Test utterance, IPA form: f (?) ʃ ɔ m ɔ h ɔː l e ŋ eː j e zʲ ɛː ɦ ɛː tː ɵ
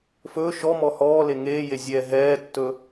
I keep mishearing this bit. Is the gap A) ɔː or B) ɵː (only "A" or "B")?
B